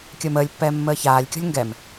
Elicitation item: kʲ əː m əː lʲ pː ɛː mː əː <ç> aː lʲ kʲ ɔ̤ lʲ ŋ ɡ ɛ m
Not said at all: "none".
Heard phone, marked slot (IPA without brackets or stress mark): ç